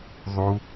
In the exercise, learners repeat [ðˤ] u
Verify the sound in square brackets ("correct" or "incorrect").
correct